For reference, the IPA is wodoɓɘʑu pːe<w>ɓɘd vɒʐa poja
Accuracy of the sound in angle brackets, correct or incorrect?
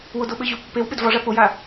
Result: correct